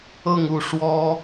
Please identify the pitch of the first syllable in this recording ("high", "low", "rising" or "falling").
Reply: falling